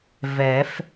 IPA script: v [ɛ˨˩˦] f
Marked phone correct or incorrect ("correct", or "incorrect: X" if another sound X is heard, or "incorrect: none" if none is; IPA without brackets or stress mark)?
correct